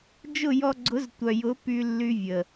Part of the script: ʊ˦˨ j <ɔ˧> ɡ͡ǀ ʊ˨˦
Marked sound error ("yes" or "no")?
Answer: no